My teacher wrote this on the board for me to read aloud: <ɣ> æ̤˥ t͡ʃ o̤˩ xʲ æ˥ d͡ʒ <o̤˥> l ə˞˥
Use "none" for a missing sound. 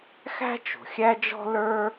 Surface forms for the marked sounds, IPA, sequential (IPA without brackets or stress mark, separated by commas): x, ɔ̤˥